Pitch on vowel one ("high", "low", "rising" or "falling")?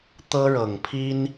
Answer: high